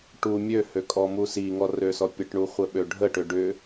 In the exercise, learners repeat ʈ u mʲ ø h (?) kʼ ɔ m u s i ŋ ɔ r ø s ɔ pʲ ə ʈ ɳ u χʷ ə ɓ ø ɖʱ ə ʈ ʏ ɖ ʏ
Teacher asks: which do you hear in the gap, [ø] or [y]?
ø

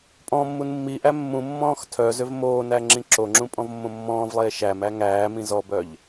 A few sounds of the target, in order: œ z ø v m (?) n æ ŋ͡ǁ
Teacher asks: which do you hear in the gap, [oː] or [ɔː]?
oː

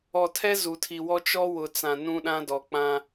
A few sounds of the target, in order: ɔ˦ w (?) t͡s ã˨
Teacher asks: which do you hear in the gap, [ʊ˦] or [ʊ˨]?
ʊ˨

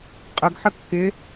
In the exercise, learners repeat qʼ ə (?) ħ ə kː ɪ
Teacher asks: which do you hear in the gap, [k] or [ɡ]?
ɡ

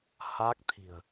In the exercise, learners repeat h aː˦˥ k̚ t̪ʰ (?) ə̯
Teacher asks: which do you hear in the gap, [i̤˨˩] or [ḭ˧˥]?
i̤˨˩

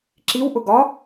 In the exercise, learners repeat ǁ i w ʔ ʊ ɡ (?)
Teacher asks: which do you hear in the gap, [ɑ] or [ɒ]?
ɒ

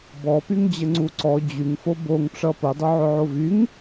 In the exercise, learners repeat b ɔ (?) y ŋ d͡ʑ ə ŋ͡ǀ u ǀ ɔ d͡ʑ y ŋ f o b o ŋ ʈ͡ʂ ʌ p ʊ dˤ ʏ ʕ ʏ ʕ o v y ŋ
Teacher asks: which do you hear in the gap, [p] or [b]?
p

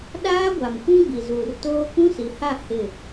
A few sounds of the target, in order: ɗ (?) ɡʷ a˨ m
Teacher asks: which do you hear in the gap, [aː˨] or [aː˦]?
aː˦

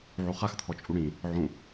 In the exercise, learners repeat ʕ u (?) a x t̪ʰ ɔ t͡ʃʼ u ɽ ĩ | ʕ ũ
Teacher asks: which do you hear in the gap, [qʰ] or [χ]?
χ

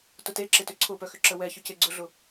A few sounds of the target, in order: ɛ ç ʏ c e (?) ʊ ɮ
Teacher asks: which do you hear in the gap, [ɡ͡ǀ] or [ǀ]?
ɡ͡ǀ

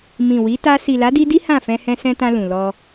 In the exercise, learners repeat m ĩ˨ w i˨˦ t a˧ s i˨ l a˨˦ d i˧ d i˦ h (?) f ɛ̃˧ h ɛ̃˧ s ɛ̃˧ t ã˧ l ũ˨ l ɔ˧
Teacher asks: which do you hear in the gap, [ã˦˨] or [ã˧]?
ã˦˨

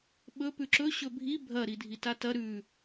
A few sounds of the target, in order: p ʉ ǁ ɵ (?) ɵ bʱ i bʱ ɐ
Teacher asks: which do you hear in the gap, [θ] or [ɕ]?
ɕ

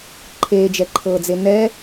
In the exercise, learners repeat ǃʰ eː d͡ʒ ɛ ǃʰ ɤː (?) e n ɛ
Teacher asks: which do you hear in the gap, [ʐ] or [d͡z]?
d͡z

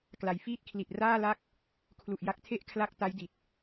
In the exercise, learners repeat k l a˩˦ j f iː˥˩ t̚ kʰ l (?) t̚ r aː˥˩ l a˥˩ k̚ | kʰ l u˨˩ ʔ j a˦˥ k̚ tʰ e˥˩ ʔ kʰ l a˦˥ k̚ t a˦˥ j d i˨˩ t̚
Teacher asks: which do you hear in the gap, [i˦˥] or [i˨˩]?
i˨˩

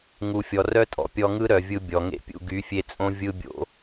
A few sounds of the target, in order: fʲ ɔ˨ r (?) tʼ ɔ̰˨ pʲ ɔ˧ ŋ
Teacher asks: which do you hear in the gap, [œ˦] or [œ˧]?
œ˦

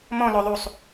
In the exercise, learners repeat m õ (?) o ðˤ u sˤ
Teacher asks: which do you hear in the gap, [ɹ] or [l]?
l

